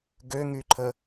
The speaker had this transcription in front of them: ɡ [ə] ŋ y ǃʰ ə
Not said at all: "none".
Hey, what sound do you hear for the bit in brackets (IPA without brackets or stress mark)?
ø